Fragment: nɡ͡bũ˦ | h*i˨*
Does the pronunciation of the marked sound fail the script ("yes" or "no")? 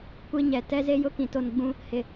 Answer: yes